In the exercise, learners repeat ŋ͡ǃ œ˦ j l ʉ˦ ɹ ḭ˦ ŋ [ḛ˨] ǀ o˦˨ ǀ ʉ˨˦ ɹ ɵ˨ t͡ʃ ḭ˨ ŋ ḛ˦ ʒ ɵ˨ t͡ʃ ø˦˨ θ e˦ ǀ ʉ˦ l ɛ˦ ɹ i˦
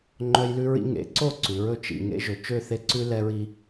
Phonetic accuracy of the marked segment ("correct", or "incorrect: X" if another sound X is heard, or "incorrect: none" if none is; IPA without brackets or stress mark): incorrect: ḛ˨˦